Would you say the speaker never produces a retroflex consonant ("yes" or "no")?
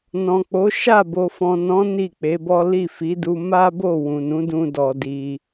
yes